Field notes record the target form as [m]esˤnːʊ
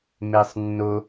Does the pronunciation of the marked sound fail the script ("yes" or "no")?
no